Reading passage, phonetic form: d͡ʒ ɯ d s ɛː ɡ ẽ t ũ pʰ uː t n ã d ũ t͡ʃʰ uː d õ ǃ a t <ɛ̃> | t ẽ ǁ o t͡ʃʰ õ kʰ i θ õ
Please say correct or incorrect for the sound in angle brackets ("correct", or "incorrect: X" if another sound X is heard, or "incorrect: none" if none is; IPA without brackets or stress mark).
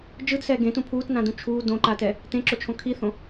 incorrect: ɛ